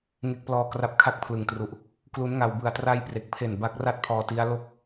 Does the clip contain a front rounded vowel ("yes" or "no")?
no